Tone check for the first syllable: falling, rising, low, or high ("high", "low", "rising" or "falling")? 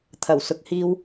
low